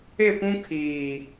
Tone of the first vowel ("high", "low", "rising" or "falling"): falling